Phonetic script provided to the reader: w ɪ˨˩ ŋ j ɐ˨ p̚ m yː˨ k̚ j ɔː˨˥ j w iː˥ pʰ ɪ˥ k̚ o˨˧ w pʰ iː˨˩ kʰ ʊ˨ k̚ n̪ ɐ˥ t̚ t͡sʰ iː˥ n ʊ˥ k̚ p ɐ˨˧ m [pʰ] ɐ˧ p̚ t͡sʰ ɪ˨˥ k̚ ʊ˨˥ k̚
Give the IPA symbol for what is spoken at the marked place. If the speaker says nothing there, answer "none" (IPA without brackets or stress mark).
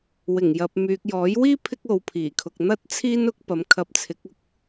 kʰ